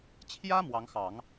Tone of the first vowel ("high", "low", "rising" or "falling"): high